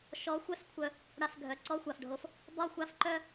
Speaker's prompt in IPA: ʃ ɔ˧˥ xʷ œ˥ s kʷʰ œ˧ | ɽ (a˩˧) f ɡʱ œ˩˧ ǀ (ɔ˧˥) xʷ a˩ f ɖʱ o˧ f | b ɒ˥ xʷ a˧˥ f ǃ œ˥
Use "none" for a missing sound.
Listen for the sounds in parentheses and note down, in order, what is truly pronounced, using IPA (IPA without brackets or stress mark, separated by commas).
a˧, ɔ˧˥